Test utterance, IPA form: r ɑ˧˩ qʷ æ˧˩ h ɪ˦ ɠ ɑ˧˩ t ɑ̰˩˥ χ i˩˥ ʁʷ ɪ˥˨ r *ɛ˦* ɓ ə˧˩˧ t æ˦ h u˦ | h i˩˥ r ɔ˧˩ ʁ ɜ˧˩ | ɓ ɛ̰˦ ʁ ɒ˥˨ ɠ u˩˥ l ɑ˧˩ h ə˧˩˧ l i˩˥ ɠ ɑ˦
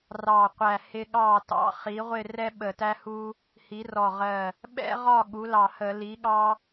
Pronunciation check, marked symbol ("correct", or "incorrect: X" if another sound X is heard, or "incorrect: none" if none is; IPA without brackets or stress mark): correct